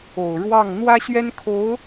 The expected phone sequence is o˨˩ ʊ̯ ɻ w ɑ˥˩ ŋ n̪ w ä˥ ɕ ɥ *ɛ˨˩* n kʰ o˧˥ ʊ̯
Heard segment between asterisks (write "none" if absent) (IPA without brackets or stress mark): ɛ˥